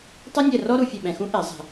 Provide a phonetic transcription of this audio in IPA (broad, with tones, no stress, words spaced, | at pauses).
tˤɨ˥nʲɛ˦˨rɔ˥ ɾu˨fʲɛ˦˨ɓɛ̃˨xũ˥ ʔɛ˨˩˦zˤɛ̤˨